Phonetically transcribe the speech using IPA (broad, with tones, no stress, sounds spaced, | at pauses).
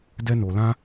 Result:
d ɛ˦ n o˧ l ã˦